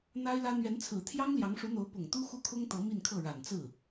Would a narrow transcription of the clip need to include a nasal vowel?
no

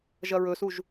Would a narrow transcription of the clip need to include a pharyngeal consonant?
no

